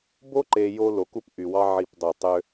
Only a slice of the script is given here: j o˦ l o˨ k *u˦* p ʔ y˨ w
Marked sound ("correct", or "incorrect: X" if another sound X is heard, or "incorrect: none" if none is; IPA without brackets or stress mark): correct